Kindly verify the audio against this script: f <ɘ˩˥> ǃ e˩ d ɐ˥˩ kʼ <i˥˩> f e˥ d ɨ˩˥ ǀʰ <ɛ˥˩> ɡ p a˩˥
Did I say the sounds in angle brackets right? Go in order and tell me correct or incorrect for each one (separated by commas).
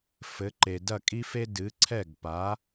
correct, incorrect, correct